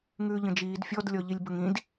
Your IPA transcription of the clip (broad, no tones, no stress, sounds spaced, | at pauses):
ŋ ʉː ʎ ə̃ d͡ʒ iː d fʲ ɔ d lʲ ɔ ʎ i lʲ b ə ŋ ĩ d